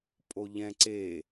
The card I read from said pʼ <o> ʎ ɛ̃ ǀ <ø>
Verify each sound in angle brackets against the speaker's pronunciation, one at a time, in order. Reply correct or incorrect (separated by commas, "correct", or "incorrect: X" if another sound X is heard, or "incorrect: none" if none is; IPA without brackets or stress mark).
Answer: correct, incorrect: e